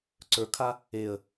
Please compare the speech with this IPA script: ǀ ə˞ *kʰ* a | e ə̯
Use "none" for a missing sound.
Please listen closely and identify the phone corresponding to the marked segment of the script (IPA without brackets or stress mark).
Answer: kʰ